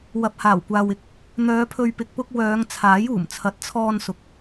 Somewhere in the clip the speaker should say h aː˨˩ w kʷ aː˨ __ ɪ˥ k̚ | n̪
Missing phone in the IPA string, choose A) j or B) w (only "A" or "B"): B